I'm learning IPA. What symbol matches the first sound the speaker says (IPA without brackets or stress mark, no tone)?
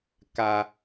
k